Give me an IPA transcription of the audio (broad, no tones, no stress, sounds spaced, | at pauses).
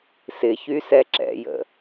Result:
s ɪ ç y s ɛ ǁ ɛ̰ j ə̰